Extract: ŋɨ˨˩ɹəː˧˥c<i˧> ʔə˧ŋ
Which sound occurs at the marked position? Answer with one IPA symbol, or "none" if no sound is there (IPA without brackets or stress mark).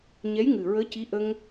i˧˥